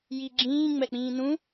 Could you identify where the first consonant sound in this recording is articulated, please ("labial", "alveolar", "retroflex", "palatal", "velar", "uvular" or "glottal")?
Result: palatal